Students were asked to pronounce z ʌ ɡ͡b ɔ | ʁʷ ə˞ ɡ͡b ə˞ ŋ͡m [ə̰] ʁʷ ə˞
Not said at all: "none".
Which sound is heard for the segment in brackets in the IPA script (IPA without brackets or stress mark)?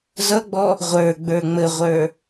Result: ə